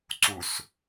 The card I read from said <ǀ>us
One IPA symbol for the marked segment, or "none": ǀ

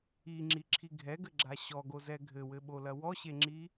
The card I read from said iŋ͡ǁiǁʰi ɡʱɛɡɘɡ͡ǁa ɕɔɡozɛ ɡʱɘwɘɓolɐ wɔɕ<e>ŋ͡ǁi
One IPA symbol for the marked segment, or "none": e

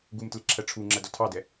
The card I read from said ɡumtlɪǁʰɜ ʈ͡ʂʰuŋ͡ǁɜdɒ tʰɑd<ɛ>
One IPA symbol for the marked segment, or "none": ɛ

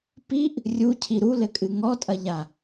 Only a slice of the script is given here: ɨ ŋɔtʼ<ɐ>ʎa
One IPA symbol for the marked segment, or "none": ɐ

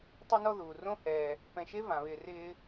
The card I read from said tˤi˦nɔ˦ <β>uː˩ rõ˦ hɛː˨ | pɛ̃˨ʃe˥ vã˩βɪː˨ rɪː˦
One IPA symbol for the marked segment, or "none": ð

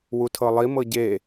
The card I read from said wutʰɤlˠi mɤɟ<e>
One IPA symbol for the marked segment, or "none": e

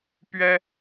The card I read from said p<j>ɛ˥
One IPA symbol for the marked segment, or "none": ɥ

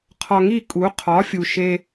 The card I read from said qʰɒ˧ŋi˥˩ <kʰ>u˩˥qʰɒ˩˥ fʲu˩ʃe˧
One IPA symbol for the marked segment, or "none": kʼ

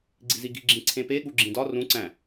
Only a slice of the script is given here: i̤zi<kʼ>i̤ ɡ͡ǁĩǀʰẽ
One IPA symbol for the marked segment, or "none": ɡ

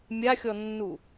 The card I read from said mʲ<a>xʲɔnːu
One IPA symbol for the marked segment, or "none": a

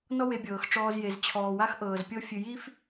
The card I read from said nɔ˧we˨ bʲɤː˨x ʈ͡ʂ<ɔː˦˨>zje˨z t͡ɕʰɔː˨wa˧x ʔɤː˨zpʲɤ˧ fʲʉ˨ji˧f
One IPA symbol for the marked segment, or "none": ɔː˧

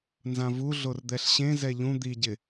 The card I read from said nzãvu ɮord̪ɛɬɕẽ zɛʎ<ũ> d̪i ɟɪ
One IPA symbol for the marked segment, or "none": ũ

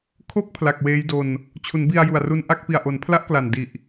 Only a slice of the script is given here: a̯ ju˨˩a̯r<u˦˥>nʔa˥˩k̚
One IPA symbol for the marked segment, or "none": u˦˥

